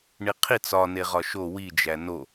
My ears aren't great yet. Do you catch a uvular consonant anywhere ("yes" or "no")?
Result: yes